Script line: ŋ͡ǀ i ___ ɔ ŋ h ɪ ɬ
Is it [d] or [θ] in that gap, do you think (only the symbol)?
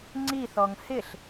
θ